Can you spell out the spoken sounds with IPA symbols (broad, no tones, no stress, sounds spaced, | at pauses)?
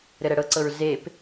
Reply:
ɾ ɘ ɾ ɛ ɽ ɤ ǀ ɤ ɹ z e p